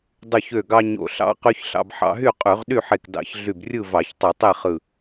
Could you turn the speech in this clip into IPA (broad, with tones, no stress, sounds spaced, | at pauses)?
dˤ y˧˩ ç ø˧˩ ɡ ɑ˧ ɲ o̰˧˩ ɬ ɑ̰˦˥ q y˦˥ ç ɬ ɑ̰˧ b ħ ɑ̰˧ ɦ y˥˨ qʼ y˧˩˧ ʁ ɗ y˥˨ ħ e˧˩ k d ɑ̰˧˩˧ ç ɮ y˧˩ b rʲ ɯ˥˨ v ɑ˧˩˧ ç tˤ ɯ˧˩˧ tˤ e˥˨ χ ɯ˧˩